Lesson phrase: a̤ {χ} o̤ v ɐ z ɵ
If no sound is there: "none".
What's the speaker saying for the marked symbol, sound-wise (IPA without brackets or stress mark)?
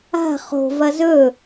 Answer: χ